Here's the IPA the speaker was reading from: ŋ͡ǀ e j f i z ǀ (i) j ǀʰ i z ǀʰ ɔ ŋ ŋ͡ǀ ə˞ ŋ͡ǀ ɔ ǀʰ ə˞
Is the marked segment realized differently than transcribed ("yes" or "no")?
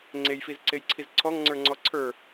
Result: yes